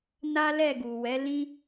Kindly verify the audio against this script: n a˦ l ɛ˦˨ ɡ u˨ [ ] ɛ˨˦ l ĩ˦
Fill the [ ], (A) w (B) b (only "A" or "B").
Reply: A